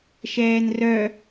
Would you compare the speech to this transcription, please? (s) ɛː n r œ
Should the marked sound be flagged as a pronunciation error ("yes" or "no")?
yes